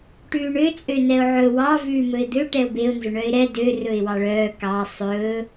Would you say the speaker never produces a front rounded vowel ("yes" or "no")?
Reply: no